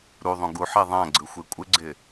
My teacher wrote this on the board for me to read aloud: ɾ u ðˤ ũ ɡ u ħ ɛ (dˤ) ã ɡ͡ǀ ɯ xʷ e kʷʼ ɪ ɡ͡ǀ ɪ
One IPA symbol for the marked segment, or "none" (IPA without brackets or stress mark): ðˤ